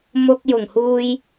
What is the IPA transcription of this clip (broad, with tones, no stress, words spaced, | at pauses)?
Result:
mʊ˧k̚jʊ˨˩ŋhuː˧j